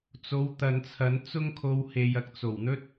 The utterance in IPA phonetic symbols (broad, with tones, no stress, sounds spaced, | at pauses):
t͡s o˨˧ w t̪ ɐ˨ n t͡sʰ ɐ˨˧ n t͡s ʊ˥ ŋ kʰ o˧ w h e˨ j ɐ˧ k̚ t͡s o˨˩ w n̪ ɵ˥ t̚